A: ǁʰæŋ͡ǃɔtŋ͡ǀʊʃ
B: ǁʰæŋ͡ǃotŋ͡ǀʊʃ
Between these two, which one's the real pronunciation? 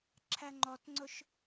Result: A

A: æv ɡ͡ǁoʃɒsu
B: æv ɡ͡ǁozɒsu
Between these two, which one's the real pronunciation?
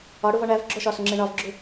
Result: A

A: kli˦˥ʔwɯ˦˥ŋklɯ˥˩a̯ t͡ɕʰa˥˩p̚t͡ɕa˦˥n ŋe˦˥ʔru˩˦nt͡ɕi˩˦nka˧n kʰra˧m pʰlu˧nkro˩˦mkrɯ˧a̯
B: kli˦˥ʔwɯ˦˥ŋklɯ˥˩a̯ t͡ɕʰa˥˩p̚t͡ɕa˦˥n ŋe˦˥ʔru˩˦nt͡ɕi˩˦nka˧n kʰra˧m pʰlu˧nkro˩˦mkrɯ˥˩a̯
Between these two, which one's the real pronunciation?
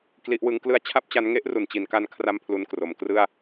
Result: B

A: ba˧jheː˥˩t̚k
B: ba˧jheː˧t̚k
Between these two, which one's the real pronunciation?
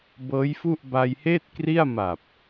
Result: A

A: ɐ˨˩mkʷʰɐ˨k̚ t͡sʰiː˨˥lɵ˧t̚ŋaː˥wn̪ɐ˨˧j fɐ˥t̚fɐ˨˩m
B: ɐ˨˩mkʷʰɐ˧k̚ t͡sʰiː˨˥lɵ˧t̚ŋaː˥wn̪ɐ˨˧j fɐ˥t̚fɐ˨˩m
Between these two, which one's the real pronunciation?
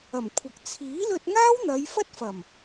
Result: A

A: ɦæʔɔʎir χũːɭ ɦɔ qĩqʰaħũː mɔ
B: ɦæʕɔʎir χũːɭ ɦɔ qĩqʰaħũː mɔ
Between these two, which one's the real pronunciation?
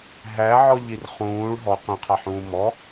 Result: B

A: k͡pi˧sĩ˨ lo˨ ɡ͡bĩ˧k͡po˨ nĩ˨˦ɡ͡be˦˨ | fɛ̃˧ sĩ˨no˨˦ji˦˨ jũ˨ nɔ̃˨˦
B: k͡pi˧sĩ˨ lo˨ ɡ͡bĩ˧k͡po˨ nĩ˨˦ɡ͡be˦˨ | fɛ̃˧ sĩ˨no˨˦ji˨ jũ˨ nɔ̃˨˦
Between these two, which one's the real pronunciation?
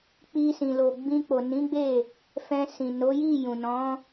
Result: A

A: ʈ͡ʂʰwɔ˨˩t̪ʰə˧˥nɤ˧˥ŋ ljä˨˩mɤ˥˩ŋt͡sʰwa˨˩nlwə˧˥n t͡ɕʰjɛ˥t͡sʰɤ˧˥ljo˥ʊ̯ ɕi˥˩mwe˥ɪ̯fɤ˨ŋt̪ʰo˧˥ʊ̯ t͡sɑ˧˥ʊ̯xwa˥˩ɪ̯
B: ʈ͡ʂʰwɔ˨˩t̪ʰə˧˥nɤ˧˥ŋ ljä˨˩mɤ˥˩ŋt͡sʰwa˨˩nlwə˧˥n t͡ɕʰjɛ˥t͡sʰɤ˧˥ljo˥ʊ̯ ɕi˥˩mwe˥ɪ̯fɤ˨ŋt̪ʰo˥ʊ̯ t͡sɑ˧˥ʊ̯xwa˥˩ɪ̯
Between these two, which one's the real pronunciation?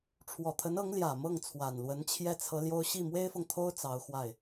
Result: B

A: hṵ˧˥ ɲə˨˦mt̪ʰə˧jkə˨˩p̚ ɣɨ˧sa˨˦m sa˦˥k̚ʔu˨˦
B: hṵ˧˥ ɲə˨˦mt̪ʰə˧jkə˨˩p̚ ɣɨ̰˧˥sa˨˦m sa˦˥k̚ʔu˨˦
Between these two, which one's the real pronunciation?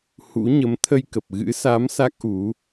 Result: B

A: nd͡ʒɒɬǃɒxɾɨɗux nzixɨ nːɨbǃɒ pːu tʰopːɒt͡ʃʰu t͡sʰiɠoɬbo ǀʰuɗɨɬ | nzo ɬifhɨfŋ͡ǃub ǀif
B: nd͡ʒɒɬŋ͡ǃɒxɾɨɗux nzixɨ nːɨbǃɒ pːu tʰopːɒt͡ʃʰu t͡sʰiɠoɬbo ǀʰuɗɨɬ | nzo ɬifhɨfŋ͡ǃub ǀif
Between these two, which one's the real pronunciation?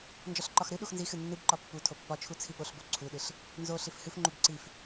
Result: A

